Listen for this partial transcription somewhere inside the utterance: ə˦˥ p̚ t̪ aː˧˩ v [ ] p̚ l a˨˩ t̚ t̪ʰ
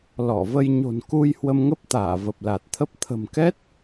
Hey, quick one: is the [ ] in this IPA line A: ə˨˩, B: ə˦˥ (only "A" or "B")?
A